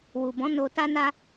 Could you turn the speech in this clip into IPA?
w u˨ b ɔ̃˨˦ n o˧ t a˧ n a˧

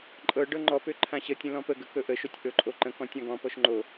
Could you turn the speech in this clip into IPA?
ǃʼ ɤ ɖ ɤ ŋ͡ǃ ɔ p ø ǃʰ ã ɕ ə tʲ ə̃ l ɔ̃ p ə ɡ ə k ɵ ʔ ə ʃ o tʲ ʔ ɵ ǃʼ o ǃ ə̃ k ɔ̃ tʲ ã ɡ ɔ̃ p ɔ ʃ ŋ͡ǃ o

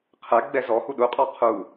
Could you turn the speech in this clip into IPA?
qʰ ɛ ɡ͡b ɛ z ɔ h u ɗ u qʼ ɔ qʰ u

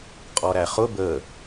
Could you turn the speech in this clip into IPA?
qʼ ɔ ɾ æ χ ʊ b ə

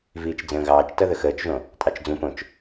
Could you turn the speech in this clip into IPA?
v iː t͡ʃ d͡z ə̃ː ɣ ɑː t͡ʃ t ʌ ð ə x əː t͡ʃ ʒ õ | tʼ ɑ t͡ʃ d͡z ũ p õ t͡ʃ

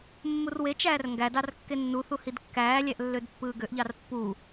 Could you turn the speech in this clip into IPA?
mː u r w e t͡ʃ æː r ŋ ɡ æ d ɑ r kː e nː u θ u h i d kː æː lʲ æ ʔ lː ø d pː ɯː ɡ ø ʔ ʎ ɑ r pː u

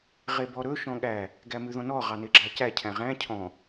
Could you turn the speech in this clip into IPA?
ʁ e b ɔ ɾ ɵ ʃ ɔ̃ ɠ æ | ɡ æ m ʉ ð ɔ̃ n ɔ ʁ ɑ n e ɡ͡ǁ ɑ c æ cʰ æ̃ ʁ æ̃ cʰ ɔ̃

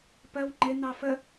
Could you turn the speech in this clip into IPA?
p ɜ w ŋ͡ǃ ɪ n̪ ɑ f ə

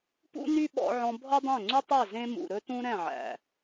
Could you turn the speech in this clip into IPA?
p ṵ˦ n y˦ ɓ ɔ̰˧ ʕ ɔ̃˧ bʱ ɔ˦ dˤ ɛ̃˦˨ ŋ͡ǀ ʉ˦ tˤ ø˦˨ z ẽ˦ m ṵ˨ ɾ ɵ˦ t ũ˦ ɾ ɛ̃˦˨ ʕ æ̰˨

